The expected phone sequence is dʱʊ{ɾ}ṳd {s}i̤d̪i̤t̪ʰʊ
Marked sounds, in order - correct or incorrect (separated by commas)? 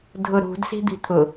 correct, correct